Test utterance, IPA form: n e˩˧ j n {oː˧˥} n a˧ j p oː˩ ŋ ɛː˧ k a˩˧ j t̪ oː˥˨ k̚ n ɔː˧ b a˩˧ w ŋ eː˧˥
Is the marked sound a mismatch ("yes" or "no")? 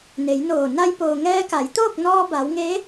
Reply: yes